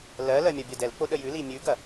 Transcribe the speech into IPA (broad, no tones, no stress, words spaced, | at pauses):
lɜlɜ mʲɐbʲɜdɛlk͡po ɗəjʉli mʲʉɡɐ